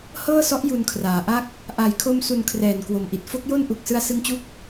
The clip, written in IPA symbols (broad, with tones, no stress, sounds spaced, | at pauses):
h ɤː˥˩ s ɔ˦˥ ʔ j u˧ n kʰ r aː˩˦ ʔ a˥˩ k̚ | ʔ a˨˩ j kʰ o˧ m s u˧ n kʰ r ɛː˨˩ n k w o˨˩ m ʔ i˨˩ t̚ f o˥˩ k̚ j o˥˩ n ʔ u˨˩ k̚ s ɯ˧ a̯ s ɯ˧ ŋ t͡ɕ u˦˥ k̚